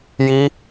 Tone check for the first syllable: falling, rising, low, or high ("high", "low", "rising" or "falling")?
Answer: high